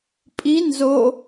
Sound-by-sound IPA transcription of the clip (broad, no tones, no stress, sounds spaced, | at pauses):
pʼ i n z o